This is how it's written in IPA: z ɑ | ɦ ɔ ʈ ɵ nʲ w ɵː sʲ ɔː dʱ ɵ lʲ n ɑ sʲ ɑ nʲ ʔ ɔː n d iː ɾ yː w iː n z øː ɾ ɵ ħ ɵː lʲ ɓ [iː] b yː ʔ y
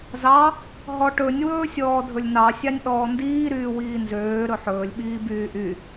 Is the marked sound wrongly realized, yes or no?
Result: no